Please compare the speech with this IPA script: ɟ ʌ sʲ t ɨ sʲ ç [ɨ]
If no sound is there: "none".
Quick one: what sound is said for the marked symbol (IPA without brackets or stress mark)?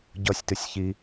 i